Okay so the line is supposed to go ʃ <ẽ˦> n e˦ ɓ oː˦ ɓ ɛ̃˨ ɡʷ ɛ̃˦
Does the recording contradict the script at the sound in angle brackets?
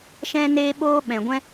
yes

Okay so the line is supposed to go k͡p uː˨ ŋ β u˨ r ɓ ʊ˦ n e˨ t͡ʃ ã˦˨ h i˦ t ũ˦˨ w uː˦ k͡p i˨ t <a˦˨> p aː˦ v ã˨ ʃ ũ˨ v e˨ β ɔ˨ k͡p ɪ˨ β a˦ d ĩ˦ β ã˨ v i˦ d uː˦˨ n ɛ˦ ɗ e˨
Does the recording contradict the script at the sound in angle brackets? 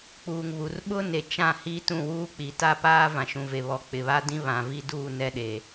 no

